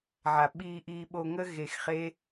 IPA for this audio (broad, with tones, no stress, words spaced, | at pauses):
ʕa˨ɓiː˧ʔiː˧ ɓo˧ŋə˦ ɣe˧xχe˦